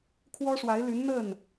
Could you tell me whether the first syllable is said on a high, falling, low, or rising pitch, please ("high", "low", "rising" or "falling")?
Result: high